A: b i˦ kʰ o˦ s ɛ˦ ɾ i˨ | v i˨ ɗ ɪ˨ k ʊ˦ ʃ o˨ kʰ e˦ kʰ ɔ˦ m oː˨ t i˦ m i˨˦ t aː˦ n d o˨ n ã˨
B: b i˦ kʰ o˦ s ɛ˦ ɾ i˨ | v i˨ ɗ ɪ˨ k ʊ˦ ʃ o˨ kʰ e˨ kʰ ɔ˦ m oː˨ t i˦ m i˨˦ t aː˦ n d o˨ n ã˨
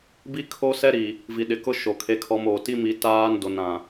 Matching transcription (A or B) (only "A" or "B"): A